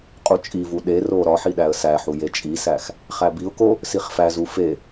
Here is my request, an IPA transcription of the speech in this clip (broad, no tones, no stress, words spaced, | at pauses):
qʼut͡ʃʼivu ɗero ɾɒħi ɗæə̯sæħu jet͡ʃʼisæx | χæbiʊ̯ko | siχfæzu fe